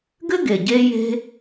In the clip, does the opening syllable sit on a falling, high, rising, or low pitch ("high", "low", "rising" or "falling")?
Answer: high